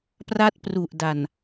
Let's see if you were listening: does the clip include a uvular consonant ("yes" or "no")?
no